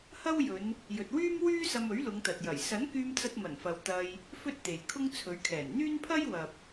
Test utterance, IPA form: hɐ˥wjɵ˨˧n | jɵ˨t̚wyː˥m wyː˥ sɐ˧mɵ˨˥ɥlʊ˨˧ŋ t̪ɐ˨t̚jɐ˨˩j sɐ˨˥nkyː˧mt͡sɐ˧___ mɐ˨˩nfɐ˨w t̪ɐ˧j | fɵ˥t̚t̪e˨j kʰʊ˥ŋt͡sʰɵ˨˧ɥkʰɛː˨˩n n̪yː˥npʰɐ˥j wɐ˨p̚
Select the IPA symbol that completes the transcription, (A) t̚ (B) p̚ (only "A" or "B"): A